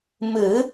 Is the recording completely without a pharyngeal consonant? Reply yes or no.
yes